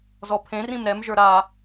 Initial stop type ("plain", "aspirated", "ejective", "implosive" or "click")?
aspirated